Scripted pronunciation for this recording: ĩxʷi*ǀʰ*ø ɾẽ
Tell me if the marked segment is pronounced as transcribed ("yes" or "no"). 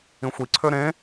yes